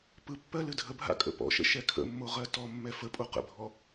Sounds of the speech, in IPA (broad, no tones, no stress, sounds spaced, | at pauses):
p ɯ pː ɜ l ɨ dʱ ə bʱ a̰ kʼ ə̰ p ɔ̰ ʃ ə̰ ʃ ɛ kʰ ə̰ mː o ʁ ɜ t ɔ mː ɛ f ə pʼ o q ə̰ bʱ ɔ